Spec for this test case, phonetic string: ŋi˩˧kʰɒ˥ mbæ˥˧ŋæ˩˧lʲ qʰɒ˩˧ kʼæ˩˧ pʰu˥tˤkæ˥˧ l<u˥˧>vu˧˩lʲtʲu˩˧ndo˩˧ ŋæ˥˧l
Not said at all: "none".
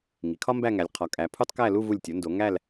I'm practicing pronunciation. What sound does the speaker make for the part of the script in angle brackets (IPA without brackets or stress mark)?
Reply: u˥˧